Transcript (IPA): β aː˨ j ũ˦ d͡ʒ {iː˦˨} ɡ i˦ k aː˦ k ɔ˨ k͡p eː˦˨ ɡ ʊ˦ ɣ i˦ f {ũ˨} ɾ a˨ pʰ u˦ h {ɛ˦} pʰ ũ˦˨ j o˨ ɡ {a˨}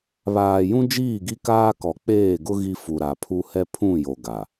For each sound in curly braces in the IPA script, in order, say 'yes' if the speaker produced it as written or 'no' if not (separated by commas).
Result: yes, no, yes, yes